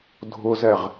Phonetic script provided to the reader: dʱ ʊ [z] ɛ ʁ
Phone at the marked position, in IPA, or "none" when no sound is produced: z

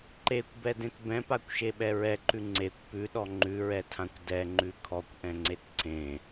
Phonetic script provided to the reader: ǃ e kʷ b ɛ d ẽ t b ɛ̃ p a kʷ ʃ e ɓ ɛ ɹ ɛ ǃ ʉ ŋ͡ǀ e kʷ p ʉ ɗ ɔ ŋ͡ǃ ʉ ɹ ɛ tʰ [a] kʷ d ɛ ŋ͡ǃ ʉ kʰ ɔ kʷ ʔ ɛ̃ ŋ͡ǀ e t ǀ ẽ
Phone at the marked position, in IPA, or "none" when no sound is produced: ã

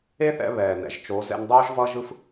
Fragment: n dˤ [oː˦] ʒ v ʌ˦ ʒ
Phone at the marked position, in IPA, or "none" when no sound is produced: oː˦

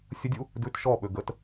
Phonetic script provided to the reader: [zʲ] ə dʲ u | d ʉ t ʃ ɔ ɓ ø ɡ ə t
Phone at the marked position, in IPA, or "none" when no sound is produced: sʲ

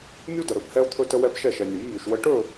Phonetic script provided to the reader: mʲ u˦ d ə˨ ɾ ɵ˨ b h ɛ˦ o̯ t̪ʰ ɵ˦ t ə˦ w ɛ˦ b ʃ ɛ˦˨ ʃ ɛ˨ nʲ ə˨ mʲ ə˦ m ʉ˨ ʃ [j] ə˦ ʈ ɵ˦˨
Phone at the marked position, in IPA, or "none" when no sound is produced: w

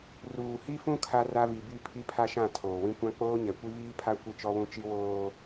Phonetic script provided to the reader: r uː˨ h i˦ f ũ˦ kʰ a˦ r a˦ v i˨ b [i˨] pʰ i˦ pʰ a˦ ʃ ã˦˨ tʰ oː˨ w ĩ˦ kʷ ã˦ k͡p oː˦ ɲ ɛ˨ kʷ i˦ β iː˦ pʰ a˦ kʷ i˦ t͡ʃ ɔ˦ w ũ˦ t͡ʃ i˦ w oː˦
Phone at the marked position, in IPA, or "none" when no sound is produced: i˦˨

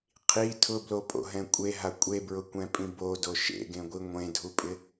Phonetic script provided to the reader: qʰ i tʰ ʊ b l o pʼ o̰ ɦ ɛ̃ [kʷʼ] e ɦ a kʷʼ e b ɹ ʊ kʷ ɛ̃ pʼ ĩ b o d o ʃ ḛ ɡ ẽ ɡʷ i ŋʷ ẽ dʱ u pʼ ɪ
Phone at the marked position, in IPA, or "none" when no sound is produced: kʷʼ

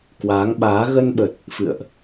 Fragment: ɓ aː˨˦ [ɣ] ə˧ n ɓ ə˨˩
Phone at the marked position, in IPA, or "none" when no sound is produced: ɣ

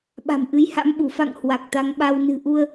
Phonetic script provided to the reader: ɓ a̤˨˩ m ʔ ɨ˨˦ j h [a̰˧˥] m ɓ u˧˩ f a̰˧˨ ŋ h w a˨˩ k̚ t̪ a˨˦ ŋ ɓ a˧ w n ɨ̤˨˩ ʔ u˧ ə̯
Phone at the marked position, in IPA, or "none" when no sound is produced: a̰˧˥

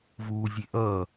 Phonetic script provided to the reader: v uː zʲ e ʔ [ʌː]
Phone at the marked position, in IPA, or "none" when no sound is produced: ʌː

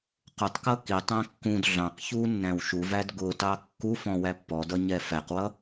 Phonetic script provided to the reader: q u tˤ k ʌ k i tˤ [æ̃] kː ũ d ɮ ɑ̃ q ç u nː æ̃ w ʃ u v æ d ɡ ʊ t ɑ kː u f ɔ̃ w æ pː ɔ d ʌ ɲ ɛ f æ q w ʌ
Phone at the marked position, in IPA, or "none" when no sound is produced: æ̃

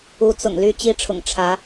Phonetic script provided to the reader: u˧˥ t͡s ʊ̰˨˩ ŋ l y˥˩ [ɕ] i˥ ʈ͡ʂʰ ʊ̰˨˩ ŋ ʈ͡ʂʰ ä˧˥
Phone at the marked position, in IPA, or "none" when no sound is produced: t͡ɕ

